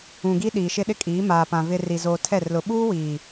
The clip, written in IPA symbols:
ũ˨ ɡ i˦ ɗ iː˨ ʃ ɪ˦ ɗ ɪ˦ kʼ iː˨˦ m aː˨ p ã˨ v ɪ˨ r i˨ z oː˨ tʰ ɛ˦˨ r l ʊ˨ ɓ uː˦ w iː˨

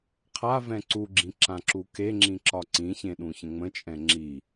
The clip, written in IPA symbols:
qʰ a v ɛ̃ ǀ u ɡ͡ǁ ĩ ǁ ã ǁ u k e ŋ͡ǁ ĩ ǁ ɒ ǀ ĩ ç ẽ ɗ ũ ç ə̃ ŋ͡m ə̃ t͡ʃʼ ɛ̃ ŋ͡ǁ i

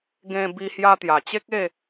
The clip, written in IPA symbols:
ɡ ẽ˧ b i˧ h j a˧ t̪ j a˨˩ t͡ɕ e˦ k̚ e˥˧

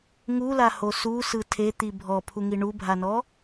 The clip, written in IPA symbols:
ŋ u l a h o s u s ɯ tʰ e t̪ i bʱ ɔ pʰ u ŋ i ɳ u bʱ a n ɔ

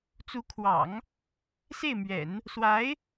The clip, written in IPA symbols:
t͡s u˧˥ kʰ w ɑ̰˨˩˦ ŋ | s e˥˩ ɪ̯ m ɥ ɛ̰˨˩˦ n | s w a˧˥ ɪ̯

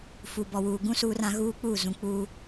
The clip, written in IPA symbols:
f uː˨ b ɔ˨ w uː˨ ɡ ũ˦ s uː˦ r ã˦ ɣ uː˦ k͡p uː˦˨ z ũ˨ k͡p uː˦

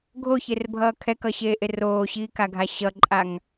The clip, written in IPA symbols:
ɡʱ o ç e r bʱ ʌː kʰ ɛ k ʌ ɕ eː ʔ e r oː ɕ iː k a ɡʱ a ɕ ʌ ǃʼ a ŋ

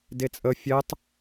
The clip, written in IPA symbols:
d e t͡sʼ ə fʲ ɛ tˤ

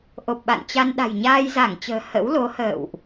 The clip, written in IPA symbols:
ʔ o˨˩ p̚ ɓ a̰˧˨ n t͡ɕ a˧ n ɗ a̤˨˩ j ɲ aː˧ j z a˧˩ ŋ t͡ɕ ə̤ː˨˩ h ə̰˧˥ w l o˨˦ h ə̰ː˧˨ w ʔ

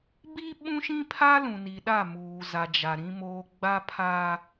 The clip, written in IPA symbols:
b i˦ ɓ ũ˦ ʃ ĩ˦ pʰ a˦ l ũ˨ n i˨ ɗ a˦˨ m uː˨ z a˨ d͡ʒ a˨ ɾ ĩ˦ m oː˦ ɡ͡b a˦ pʰ aː˦

